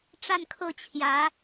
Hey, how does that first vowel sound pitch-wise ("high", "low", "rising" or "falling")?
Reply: falling